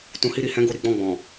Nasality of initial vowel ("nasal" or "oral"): nasal